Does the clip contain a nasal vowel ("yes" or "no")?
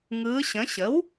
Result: yes